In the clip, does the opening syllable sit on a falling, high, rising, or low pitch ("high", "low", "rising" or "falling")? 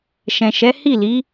low